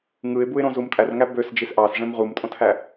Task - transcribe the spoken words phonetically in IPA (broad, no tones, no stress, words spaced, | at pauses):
ŋɯɪ̯buɪ̯ɾõ zumtʼærŋæ bøs d͡ʒisʔɑs ʐẽmʁumtʼõtʰæ